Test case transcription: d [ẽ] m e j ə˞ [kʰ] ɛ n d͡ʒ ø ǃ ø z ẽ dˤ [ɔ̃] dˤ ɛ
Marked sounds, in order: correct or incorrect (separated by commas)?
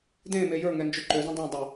correct, incorrect, incorrect